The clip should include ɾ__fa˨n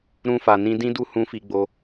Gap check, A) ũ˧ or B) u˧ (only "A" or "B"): A